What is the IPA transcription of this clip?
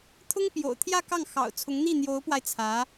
t̪ʰʊ˥ŋpjo̰˨˩ʊ̯ t̪ʰjä˥˧kɑ˥˩ŋ xɑ̰˨˩ʊ̯t͡sʰʊ˧˥ŋn̪i˥˩ n̪jo˧˥ʊ̯pwa˧ɪ̯ t͡sʰä˧˥

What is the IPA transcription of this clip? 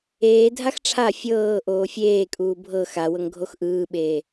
eːdʱax ʈ͡ʂʰa fʲɤː ʔoːfʲeːkʼuː bʱɤ xawɤŋ ɡʱoxʔɯːɓeː

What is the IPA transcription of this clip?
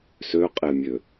søqʼemʲø

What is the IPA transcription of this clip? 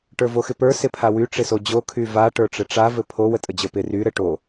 ʈə˞voxɪpə˞ sɪpʰawy ʈ͡ʂɪsod͡ʑo kʰyva ʈə˞ʈ͡ʂɘʈ͡ʂa vɘpʰo wətʼəd͡ʑə˞pɪ ry ɾɘʈo

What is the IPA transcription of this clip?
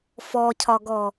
fɔcʰɒɡɔ

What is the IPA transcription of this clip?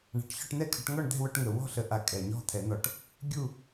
ɳa̤˨˩ʈçɔ˥˨ʈn̪ɛ˥˨kʰə˨˩˦ʈ ŋɔ˥˨ɳd̪ɛ̤˥˨wœ˥˨ʈŋə˨˩ wɔ̤˥˨ɬə˨˩˦ ʔa˨˩˦kʼɛ˨˩ɲɔ̤˥˨ t̪ʰɛ˨˩˦n̪ɔ˨˩ʈ | ɡʲu˥˨

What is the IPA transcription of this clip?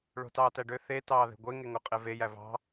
ɭo̤tɑːtæɖø θe tɑːðe̤ɡʷe ŋeŋoqʼeve jævɑ̤

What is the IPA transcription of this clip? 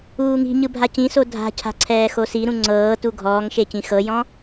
uːŋi̤ɲɯ bʱacĩso dʱa̤cʰa̤ ǀʰɛːxosiɾũ ŋ͡ǀɤː tuɡʱɔːŋʃe cĩxɤjɔ̃

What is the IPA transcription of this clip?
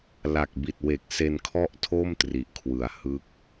la˨˩k̚bi˨˩t̚ we˨˩k̚ se˧nkʰɔ˥˩ʔtʰo˥˩m tri˨˩ʔkʰwɯ˨˩a̯ hɯ˦˥k̚

